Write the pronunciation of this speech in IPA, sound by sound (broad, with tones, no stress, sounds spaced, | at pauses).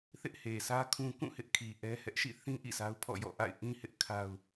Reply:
θ ɪ˦ ʔ h e˨ sʰ ä˦ kʰ ũ˦ k ũ˦˨ h ɪ˦ ʔ kʰ i˨ ʔ ɛ˦ h ɛ˦ ʔ ʃ ḭ˦˨ θ ĩ˦ ʔ ḭ˦˨ sʰ a˦ ʊ̯ pʰ ɔ̰˦˨ j ɔ̰˦˨ ʔ a̰˦˨ ɪ̯ ʔ ĩ˦ h ɪ˦ ʔ kʰ a˦ ʊ̯